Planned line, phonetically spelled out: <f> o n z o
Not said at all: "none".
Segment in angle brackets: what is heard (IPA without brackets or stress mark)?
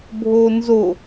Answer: bʱ